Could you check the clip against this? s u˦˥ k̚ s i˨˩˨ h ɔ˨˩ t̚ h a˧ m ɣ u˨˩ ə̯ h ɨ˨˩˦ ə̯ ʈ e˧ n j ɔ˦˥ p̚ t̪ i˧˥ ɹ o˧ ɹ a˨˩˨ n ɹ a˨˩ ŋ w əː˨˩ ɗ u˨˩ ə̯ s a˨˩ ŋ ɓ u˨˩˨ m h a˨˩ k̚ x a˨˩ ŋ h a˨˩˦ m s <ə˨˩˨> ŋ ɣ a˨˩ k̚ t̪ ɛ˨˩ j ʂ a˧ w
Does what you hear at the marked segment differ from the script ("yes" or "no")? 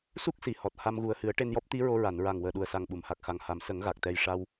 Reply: yes